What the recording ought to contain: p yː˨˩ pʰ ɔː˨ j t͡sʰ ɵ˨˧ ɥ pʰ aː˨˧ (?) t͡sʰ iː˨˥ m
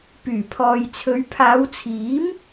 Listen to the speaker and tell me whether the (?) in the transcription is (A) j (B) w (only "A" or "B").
B